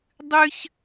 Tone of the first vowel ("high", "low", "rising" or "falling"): high